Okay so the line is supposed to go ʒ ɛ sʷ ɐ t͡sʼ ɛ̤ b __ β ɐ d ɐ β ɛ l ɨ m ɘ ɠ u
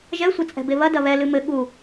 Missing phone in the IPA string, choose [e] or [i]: e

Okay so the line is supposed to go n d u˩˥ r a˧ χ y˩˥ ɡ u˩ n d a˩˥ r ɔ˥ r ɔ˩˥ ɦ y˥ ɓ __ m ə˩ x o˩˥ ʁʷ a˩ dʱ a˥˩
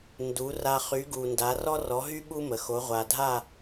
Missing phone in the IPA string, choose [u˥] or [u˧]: u˥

